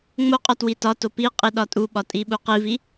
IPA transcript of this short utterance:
ŋ͡moqʼɒ twitɒto pi qʼiɗɒtʼuɓɒ tʼiɓuqivi

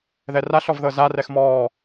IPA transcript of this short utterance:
ðɛraɬ ɔvðɤza rɛxmɔː

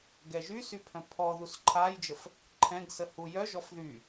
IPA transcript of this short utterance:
ɡɛʒysy pʰœ̃pʰɔðus ǃʰajd͡ʒəf | ǃʰɛ̃ɡsə hujœʒɔf ðy

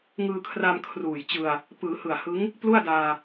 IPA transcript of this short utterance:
ŋɯː˧kʰra˧m kʰruː˨˩jt͡ɕɯ˧a̯ | pɯː˩˦hɯ˨˩a̯ hɯ˦˥ŋ | plu˥˩a̯daː˧

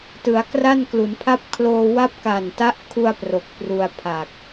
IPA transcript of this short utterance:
tɯ˩˦a̯kra˥˩nklu˩˦npʰa˥˩p̚ kʰloː˧wa˥˩p̚ ka˨˩nta˦˥ʔkʰu˧a̯ pro˨˩k̚pru˧a̯ pʰa˨˩k̚

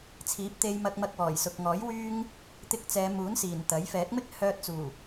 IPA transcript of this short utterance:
t͡sʰiː˨˥p̚t̪e˧jmɐ˧k̚ mɐ˧k̚wɔː˨˩jsʊ˨k̚ŋɔː˨˥j wyː˧ŋ | t̪ɪ˧k̚t͡sɛː˨˧ muː˨˥nsiː˨˩n t̪ɐ˨˥j fɛː˨˥k̚mɪ˥k̚ hœː˧t̚t͡suː˨˩

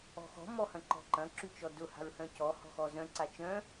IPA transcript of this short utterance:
ɔ̤xɔ̤ mɔhɐ̃ǃɔ̤ǃɐ̃ ǁyt͡ʃɔdʊ ha̤ɹhœ̃cɔ hɔ̤xɔzœ̃ ǀat͡ʃœ̃

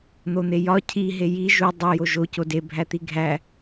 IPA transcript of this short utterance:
n̪on̪ejɒ cʰi ɦeji ʒu dˤe joʒo code bʱæt̪iɡʱæ

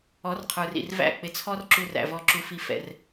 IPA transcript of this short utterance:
ɔ˨˦rqʰə˞˨rḭ˨rvæ̰˦˨ k͡pɪ˨t͡sʰɔ˧r ǁu˧ræ̰˨vɔ˧ ǁu˨fi˨fɛ̰˨r

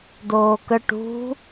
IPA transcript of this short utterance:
doːkə ʈṳ

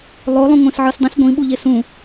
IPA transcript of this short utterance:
lˠo lˠũŋʷẽsʕɯsdˤẽs ɡʷĩ ɓuʎesũ

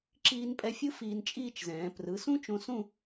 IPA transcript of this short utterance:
ǁiː˧npʼɛ˧fʲɯ˥ fiː˧n t͡ʃʼiː˥˧t͡ʃzɛ̃ː˩˧ prɯ˩˧sũ˥t͡ʃõ˧sũ˥˧

